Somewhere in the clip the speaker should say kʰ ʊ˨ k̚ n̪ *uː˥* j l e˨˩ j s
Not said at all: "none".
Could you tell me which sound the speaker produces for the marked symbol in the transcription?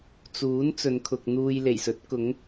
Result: uː˧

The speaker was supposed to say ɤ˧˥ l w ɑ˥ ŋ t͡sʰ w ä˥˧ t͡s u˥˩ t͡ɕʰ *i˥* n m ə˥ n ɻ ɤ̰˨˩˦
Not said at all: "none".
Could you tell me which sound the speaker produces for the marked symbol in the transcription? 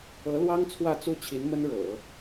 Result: i˧˥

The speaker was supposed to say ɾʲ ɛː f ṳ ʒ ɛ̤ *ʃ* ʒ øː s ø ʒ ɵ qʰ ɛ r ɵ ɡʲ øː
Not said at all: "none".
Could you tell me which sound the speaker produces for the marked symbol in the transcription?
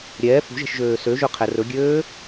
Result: ʃ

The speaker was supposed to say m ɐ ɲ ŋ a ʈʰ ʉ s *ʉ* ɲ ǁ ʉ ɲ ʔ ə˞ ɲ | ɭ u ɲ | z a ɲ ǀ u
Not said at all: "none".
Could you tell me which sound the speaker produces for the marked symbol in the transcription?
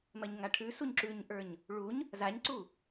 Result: u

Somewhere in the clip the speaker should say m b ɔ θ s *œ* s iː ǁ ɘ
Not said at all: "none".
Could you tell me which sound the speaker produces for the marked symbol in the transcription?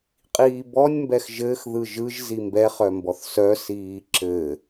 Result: œ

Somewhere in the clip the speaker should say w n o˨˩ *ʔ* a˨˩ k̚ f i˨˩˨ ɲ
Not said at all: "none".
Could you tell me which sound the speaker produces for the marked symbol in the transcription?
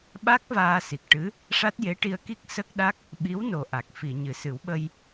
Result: ʔ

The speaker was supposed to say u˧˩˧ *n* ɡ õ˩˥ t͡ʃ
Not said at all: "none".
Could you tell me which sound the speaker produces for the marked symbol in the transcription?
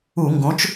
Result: ŋ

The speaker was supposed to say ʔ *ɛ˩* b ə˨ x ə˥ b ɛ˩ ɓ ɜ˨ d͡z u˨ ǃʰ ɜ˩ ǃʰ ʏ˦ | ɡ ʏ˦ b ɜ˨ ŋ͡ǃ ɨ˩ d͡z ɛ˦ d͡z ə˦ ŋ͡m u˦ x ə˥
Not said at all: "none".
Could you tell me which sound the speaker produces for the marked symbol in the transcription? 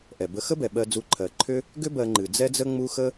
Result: ɛ˩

